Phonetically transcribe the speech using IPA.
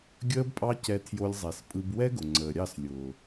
ɡʲəː˦bpʼɑ˦cɛ˧ tʰjo˧lʲzˤɛ˨spʼɯ˧b wɛ˦ɡʊ˨ ŋ͡ǀəː˨ɾʲɑ˦˨s lʲʊː˨

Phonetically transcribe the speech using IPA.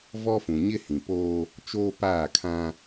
vɔ˦fũ˨ ɲɪ˦hĩ˨poː˦ | t͡ʃoː˦paː˦˨kʰã˦

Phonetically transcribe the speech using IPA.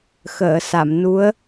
xəː˨˩˨ sa˨˩˨mnu˧˥ə̯

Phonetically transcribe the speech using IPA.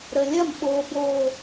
ɾə˨lʲɐ˦˨m ɓo˨bo˨

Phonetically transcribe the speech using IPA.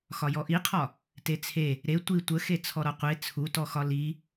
xɒjɔʔiqʰɒ | tet͡sʰe | ɾe tʷi tʷəxe t͡sʰɔɾɒqʷe t͡sʰutɔxɒ li

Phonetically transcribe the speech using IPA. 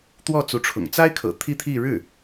t̪wɔ˥˩t͡su˧˥ʈ͡ʂʰʊ̰˨˩ŋ t͡sa˥ɪ̯kʰɤ̰˨˩ t̪ʰi˥t̪ʰi˥˧ ɻɻ̩˥˩

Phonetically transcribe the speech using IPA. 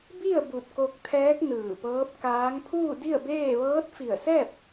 bi˥˨ə̯ bu˧˩t̚ko˧k̚t̪ʰɛː˧˥k̚ nɯː˧˩pɤː˧˥p̚kaː˧˥ŋ pʰuː˥˨di˥˨ə̯beː˥˨ ʋɤː˧˥t̚fi˧˩ə̯sɛː˥˨p̚

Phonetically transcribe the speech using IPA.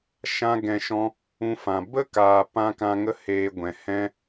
ʃã˦ɡɛ̃˧ʃɔ̃˦ | ũ˧fã˨ bə˦kaː˨ pã˧ kã˧ŋə˦heː˧ɡʷɛ̃˨ hɛ̃˧

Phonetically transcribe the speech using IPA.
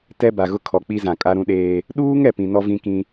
tɛ˦ba˨ɣʊ˦ kʰɔ˨k͡pi˦zã˨ kʼa˦ɾũ˦ɗeː˦ | ɗuː˦ŋ ɛ˨pĩ˨nɔ˦ vĩ˦kĩ˦

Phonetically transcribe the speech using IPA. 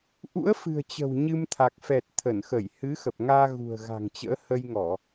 ʔṵ˧˥ə̯fɨ̤˨˩ə̯t͡ɕə̤˨˩w ɲɨ˧mt̪ʰa˨˩k̚fɛ˨˩t̚ t̪ʰə˧˩nxə˧˩j hɨ˨˦xə˨˩p̚ŋaː˧ ɣṳ˨˩ə̯ɣa̤˨˩ŋt͡ɕə̰ː˧˥ hə˧jŋɔ˧˩˨

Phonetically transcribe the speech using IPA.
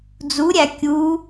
d͡zuɾʲæ kʲu

